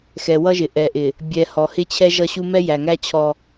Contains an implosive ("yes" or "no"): no